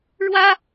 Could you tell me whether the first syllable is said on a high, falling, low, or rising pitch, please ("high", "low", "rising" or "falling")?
high